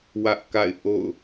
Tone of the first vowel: high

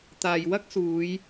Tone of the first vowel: low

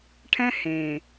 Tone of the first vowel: high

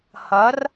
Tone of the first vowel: rising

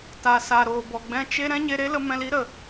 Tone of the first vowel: low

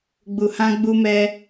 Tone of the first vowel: low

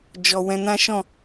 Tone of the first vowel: low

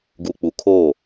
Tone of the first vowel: low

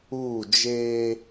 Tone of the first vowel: falling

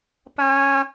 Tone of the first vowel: high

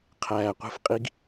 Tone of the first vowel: low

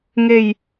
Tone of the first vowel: low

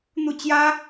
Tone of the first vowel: falling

